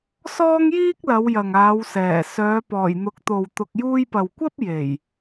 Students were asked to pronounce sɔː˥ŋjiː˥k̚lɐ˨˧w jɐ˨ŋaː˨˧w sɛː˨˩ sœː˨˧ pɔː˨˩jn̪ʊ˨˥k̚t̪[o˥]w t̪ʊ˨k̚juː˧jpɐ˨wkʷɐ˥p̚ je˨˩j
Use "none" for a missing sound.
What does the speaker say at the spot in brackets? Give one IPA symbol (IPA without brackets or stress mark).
o˨